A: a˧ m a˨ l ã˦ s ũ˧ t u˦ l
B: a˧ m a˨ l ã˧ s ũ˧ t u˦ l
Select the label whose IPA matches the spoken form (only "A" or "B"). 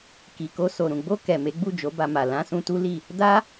B